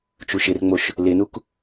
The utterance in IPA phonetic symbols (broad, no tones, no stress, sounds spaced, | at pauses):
t͡ʃ u ʃ ɪ r ŋ͡m o ʃ | l ɪ n u k